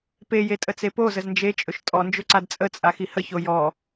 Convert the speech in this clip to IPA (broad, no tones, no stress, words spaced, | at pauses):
peje tʼət͡sepozəz nd͡ʒet͡ʃʼɵʃ tʼɔnd͡ʒɵ ǀadt͡sʼət͡sʼa xihəço jɔ